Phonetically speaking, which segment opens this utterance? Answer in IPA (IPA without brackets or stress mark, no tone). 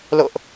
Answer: l